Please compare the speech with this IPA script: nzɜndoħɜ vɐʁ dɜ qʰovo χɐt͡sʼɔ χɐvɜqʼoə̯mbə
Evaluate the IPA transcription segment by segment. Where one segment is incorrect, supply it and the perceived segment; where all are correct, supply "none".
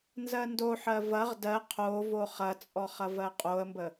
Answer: none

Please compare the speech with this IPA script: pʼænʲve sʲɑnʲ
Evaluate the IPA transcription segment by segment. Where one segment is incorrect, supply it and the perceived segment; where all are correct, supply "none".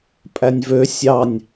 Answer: e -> ø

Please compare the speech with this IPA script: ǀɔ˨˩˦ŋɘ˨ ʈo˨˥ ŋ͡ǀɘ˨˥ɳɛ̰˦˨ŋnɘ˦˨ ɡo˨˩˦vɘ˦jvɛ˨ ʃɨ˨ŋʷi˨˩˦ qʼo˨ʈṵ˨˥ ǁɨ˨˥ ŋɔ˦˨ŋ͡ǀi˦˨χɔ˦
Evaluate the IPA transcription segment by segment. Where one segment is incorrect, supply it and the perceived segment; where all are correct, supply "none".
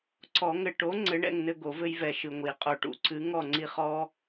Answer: ǁ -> ǀ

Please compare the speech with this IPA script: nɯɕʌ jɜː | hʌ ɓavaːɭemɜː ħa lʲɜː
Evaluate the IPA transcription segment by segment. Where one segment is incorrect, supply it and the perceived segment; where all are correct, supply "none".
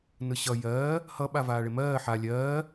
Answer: none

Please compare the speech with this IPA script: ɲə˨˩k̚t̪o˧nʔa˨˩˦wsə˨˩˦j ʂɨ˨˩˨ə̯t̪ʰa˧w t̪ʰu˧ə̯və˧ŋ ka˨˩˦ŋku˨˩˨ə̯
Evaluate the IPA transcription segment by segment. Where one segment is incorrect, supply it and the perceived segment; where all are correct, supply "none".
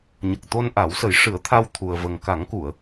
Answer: ɨ˨˩˨ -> ɨ˨˩˦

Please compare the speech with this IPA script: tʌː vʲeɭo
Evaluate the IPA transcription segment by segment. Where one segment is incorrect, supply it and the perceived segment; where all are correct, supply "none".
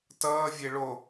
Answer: none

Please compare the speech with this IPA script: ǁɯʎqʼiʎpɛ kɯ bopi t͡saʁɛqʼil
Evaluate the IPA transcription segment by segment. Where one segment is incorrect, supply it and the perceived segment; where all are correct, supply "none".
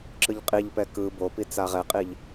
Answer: l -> ʎ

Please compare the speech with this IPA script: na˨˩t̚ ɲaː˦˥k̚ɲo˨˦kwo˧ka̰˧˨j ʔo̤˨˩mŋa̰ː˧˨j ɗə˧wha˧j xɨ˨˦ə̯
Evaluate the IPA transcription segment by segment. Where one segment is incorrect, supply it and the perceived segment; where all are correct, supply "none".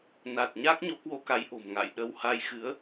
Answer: a̰˧˨ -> a˨˦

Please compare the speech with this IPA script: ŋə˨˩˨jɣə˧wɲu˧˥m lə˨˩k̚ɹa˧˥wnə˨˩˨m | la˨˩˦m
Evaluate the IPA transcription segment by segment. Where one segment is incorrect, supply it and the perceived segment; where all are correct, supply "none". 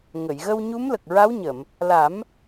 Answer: n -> ɲ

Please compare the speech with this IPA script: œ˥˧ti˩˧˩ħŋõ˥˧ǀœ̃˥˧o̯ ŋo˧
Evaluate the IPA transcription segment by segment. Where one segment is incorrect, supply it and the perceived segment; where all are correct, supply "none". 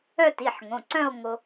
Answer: õ˥˧ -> õ˩˧˩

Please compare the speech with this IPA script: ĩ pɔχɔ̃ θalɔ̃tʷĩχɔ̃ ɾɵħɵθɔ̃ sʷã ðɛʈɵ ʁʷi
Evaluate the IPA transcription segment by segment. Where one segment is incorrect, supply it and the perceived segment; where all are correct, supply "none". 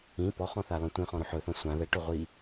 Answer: none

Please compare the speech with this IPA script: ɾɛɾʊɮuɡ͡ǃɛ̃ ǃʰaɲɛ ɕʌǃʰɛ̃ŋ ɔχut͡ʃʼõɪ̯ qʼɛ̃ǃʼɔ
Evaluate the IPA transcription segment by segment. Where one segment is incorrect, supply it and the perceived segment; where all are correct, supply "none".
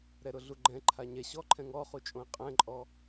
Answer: ʌ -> ɔ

